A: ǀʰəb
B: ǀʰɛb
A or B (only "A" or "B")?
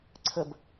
A